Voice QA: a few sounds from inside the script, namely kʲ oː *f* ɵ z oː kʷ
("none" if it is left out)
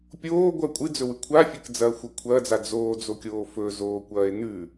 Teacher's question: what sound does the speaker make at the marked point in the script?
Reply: f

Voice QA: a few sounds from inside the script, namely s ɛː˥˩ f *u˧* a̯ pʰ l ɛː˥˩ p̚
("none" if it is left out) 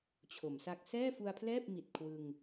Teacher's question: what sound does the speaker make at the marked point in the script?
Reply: u˧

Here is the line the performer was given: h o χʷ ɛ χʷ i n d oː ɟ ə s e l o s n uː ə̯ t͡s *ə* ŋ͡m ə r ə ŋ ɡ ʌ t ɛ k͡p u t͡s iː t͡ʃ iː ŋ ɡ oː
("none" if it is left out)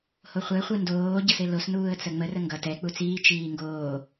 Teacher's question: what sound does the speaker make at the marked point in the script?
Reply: ə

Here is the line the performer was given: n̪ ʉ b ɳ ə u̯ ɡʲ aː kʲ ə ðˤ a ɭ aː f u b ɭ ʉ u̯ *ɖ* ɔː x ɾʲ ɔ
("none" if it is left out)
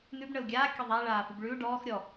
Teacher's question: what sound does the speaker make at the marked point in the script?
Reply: ɖ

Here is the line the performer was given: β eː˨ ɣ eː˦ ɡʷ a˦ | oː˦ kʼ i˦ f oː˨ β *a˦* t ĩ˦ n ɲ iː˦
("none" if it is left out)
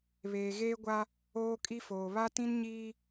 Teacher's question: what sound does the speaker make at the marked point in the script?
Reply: a˦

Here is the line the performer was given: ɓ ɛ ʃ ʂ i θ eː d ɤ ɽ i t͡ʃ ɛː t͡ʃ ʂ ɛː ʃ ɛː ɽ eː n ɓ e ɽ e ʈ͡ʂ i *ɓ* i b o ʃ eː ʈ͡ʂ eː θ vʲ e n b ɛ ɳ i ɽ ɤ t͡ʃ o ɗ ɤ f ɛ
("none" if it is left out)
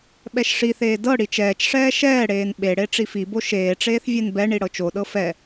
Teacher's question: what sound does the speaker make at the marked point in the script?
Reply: f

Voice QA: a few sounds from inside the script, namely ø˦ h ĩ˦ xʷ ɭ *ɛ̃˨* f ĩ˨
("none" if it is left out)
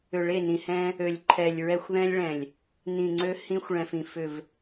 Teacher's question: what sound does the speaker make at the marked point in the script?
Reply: ɛ̃˨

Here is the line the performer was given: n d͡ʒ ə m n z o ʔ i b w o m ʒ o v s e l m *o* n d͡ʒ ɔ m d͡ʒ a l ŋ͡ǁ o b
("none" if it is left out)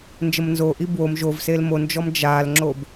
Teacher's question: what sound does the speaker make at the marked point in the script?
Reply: o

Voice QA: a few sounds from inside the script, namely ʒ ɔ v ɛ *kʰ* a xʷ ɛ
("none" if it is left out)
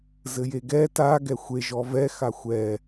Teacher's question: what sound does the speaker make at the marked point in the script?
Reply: x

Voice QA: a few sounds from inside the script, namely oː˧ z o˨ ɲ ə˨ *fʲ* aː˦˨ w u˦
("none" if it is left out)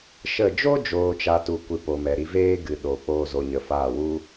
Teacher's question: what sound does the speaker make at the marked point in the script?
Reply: f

